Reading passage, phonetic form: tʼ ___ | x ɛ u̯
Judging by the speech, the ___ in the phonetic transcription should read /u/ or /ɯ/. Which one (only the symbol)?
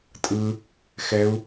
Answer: ɯ